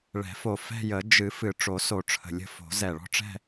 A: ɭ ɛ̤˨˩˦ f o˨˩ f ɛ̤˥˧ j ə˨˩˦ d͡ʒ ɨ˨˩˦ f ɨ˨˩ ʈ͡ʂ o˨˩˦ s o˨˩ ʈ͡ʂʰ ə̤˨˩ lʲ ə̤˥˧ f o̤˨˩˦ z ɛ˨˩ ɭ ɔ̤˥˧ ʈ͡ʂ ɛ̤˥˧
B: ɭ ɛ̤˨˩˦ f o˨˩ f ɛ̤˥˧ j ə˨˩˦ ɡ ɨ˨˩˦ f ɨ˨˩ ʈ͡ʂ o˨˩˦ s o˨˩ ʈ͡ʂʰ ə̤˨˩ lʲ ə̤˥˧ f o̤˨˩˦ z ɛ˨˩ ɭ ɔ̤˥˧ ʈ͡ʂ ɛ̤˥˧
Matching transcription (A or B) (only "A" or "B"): A